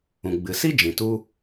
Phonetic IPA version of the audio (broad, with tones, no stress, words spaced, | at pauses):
ũ˨ɡ͡bɨ˨si˦ d͡ʒĩ˨ tu˧